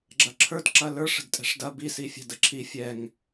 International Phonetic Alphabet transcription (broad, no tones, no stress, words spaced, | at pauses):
ɡ͡ǁɐǁʰə˞d ǁɐlə˞ʂ ə̤dtʼɛ̤ʂdɐ bi sifʲɛ̤dəǁʰi fʲɛŋ